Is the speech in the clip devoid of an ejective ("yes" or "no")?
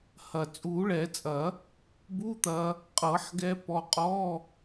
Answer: no